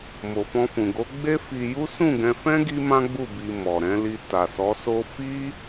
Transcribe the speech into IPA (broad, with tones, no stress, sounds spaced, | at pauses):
m o˨ f ɔ̃˧ f ũ˨ ɡ o˨˦ ɡ͡b e˦ f i˧ j u˦ s ũ˦˨ ɡ ɛ̃˧ f ɛ̃˦ ɡ i˦ m ã˦ ɡ͡b u˦˨ b i˧ m ɔ˨ ɾ ɛ̃˨˦ l i˧ t a˨ s ɔ˨˦ s o˦ f i˦